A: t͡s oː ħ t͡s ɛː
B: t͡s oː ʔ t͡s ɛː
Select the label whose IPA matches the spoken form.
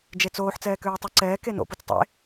A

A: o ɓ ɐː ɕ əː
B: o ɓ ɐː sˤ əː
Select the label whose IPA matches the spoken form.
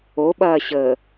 A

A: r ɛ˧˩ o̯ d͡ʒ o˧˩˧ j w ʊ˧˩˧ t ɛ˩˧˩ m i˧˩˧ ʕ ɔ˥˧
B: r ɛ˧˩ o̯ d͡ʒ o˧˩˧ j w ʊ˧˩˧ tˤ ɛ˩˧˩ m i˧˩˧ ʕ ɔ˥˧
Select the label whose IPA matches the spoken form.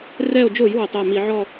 B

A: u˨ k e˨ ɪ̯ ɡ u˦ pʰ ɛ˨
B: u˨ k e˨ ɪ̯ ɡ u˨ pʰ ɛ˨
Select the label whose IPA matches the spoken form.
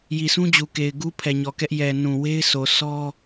A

